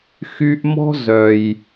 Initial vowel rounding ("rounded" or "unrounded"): rounded